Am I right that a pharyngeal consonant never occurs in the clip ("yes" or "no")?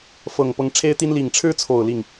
yes